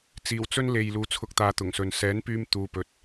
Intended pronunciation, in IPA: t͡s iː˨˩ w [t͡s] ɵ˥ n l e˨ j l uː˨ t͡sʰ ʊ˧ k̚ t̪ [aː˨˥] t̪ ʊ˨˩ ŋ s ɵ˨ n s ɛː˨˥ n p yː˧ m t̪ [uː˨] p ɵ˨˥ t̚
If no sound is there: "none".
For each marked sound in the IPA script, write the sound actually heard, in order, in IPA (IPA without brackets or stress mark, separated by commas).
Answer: t͡s, aː˨, uː˨